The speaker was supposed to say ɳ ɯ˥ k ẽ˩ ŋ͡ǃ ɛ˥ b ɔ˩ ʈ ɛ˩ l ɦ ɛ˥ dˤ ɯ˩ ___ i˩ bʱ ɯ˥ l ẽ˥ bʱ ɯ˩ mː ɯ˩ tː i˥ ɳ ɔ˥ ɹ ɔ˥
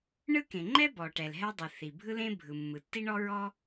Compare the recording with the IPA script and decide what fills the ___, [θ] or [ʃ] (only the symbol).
θ